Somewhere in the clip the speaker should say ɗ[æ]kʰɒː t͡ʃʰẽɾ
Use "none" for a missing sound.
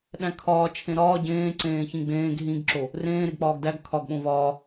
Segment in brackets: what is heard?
æ̃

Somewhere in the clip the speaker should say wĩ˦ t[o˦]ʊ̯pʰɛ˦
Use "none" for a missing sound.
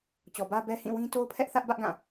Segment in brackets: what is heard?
o˦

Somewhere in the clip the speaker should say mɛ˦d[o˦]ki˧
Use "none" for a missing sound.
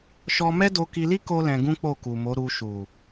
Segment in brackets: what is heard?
o˧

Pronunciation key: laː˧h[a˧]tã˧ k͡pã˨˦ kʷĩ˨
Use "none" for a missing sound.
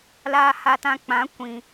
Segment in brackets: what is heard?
a˧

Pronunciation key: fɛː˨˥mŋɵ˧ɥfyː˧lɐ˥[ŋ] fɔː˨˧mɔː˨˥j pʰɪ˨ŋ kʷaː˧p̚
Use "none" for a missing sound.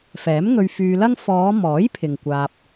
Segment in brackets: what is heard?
ŋ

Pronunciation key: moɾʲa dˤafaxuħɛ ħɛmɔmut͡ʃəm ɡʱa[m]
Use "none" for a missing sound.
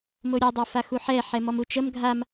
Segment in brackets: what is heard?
m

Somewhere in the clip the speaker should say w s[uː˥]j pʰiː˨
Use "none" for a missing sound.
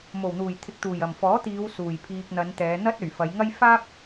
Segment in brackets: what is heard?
uː˨˩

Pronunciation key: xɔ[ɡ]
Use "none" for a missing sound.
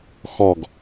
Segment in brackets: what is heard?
ɡ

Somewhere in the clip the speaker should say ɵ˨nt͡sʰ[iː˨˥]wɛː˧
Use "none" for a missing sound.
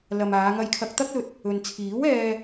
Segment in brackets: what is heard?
iː˨˥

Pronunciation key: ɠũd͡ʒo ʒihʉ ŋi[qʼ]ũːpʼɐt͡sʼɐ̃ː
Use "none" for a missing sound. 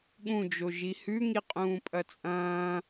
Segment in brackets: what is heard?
qʼ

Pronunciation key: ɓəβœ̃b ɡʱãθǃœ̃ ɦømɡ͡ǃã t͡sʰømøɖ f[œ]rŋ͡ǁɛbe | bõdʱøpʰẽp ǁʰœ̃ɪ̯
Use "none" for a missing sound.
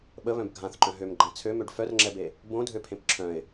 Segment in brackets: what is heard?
œ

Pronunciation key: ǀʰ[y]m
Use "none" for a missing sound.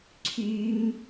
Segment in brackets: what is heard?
y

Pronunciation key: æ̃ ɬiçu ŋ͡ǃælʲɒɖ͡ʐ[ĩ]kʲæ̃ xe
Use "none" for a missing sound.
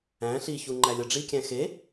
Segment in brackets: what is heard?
i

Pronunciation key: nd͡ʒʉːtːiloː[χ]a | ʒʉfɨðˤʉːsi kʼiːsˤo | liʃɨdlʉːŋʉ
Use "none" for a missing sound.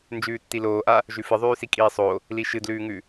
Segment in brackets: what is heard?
ʔ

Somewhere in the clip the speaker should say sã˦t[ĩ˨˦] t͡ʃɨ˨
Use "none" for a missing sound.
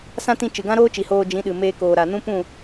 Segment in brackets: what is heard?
ĩ˧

